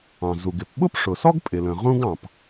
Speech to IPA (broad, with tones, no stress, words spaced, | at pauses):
ɑ̃˩zu˩ɡɪ˩p ɓʊ˥pʂʊ˩sɔ˥ɡ pʼɪ˩lə̃˩ ʁũ˥ɡɑ̃˩p